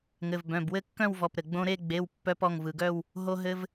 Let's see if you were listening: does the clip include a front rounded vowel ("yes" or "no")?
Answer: yes